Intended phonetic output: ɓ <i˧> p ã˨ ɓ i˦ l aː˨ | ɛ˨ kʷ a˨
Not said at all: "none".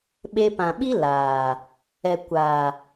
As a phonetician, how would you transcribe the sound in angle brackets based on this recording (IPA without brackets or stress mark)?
e˧